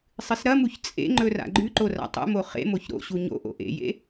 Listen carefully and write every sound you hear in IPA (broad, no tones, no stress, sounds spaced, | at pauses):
sˤ ɨ s ɾ ɐ m u ç t͡sʼ ḛ ŋ͡ǃ ɵ r a̰ ɡ͡ǃ ʉ ǃ o r a̰ tˤ ṵ m o χ ḛ m o ç ɾ o̰ ɕ u ɲ o̰ ʔ o̰ ʔ ḛ j ḛ